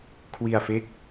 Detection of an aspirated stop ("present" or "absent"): present